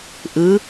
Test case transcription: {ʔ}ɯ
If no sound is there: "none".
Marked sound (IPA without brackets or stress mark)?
ʔ